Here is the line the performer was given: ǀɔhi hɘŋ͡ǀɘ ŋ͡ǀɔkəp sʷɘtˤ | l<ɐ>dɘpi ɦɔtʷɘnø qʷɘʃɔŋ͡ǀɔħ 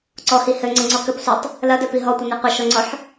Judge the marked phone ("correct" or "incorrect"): correct